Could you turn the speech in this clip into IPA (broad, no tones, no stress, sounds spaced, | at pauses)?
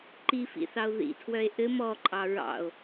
ǃ i f ḭ θ ɑ o̯ ð ḭ tʰ w œ e̯ ʔ ɘ m ɔ ǃʼ ɑ ɹ ɑ̰ o̯